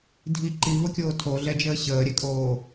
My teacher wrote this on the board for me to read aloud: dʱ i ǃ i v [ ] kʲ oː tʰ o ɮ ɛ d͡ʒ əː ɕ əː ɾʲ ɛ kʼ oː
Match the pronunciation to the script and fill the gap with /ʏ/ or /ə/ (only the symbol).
ə